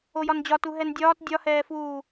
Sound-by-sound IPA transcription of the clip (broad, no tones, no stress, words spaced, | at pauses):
ojɒnd͡ʑɒtu ɦɛndʲɒːt dʲɒhɛːfuː